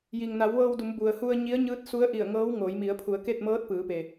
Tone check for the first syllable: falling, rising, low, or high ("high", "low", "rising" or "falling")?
low